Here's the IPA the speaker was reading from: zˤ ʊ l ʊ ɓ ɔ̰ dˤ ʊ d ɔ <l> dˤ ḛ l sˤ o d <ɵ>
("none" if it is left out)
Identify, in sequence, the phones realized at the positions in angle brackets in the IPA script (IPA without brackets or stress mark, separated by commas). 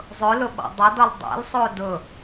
l, ʊ